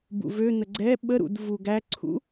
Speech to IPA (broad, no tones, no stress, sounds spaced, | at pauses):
b ṵ v ø n̪ ə ɡ͡ǀ ɛ ɓ ə ɾ ṵ d v u ɡ æ ǀʰ ṵ